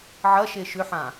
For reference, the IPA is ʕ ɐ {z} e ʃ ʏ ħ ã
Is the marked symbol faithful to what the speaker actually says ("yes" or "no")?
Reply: no